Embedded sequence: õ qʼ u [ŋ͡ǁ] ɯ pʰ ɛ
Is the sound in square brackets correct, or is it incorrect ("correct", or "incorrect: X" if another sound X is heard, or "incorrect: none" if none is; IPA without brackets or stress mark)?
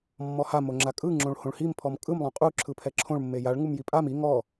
incorrect: ǁʰ